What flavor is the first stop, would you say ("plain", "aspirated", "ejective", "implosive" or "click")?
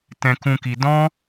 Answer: plain